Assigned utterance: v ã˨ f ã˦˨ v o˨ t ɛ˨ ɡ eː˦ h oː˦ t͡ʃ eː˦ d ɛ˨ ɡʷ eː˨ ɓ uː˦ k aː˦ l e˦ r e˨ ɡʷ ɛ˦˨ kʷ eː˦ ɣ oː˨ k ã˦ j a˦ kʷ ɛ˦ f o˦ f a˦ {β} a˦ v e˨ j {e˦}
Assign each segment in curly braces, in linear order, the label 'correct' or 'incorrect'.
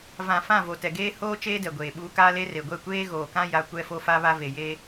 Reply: correct, correct

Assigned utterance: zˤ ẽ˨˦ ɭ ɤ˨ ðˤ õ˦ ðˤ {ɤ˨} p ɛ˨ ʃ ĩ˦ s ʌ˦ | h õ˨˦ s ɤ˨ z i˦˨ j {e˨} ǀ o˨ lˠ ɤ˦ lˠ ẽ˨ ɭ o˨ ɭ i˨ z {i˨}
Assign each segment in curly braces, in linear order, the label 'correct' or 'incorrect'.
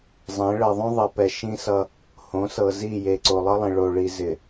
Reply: correct, correct, incorrect

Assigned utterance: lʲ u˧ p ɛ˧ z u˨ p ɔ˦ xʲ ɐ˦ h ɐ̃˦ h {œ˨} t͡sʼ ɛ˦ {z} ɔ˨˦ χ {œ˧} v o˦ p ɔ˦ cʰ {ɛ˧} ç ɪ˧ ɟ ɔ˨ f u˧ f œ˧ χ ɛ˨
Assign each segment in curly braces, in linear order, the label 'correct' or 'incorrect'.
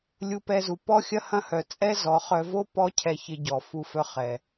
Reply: correct, correct, correct, correct

